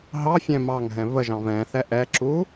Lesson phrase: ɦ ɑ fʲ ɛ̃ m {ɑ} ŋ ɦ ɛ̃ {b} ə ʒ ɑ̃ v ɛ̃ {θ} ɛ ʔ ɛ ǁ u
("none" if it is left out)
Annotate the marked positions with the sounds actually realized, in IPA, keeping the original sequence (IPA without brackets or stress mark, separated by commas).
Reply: ɑ, v, θ